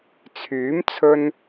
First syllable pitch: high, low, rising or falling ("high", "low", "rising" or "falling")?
rising